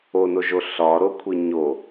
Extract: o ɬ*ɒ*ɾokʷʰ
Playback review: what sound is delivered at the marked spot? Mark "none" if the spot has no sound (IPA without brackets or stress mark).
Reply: ɒ